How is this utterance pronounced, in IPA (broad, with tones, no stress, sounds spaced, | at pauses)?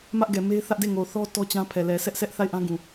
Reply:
m ä˦ ʔ ɡ ɛ˨ m e˦ ɪ̯ θ ä˦ ʔ d e˦˨ ŋ o˨ θ ɔ˦ t ɔ˦ t͡ɕ ã˦ pʰ ɛ˨ l ɛ˨ sʰ ɛ˦ ʔ s ɛ˦ ʔ θ a˦˨ ɪ̯ ʔ ã˦ ɡ ũ˨